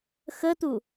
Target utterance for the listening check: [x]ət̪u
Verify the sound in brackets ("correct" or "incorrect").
correct